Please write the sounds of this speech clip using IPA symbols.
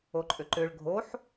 o ǃʼ ʏ ǃ ʏ ɭ ɡʱ o ħ

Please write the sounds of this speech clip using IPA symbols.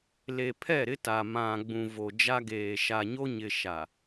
l e˨ pʰ ɛ˦˨ ɾ ɪ˦ t a˨ m ã˨ ɡ͡b ũ˨ v o˨ d͡ʒ a˦ ɡ eː˨ ʃ a˨ ɲ o˦ ɲ ɪ˨ ʃ a˨

